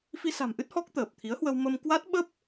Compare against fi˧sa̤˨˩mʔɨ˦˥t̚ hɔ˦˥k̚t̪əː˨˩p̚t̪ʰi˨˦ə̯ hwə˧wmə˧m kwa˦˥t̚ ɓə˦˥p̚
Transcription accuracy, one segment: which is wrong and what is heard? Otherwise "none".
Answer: none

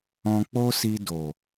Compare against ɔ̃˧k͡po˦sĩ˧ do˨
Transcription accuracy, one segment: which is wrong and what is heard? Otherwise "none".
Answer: ĩ˧ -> i˧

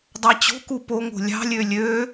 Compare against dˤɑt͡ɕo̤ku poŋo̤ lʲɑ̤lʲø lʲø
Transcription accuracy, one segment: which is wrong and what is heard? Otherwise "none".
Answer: none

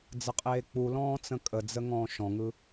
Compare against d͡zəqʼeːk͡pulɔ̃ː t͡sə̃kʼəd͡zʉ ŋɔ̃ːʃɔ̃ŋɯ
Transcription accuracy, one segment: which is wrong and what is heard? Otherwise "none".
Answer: ʉ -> ə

